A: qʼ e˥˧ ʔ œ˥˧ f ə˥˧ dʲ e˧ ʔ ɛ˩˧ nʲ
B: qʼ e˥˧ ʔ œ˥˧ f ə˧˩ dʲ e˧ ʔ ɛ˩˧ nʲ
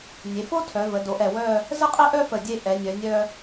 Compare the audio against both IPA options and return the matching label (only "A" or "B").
B